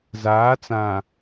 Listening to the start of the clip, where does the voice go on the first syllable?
rising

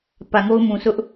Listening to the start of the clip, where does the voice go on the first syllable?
low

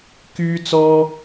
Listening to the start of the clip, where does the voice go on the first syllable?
high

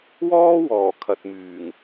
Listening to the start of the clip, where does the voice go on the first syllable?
high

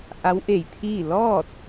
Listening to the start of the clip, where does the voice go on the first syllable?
rising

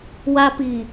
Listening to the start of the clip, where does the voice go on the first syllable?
high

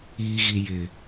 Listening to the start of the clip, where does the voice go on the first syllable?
low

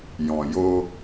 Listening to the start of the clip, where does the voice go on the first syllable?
low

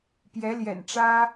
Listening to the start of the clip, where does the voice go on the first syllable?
rising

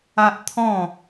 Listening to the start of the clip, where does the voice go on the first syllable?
high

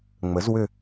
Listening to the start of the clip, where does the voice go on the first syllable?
rising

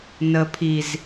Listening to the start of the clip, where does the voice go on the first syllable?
low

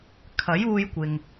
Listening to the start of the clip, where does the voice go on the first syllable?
rising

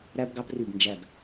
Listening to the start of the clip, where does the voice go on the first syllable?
high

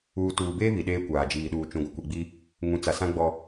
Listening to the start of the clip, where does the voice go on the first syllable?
low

